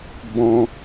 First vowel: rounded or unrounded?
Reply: rounded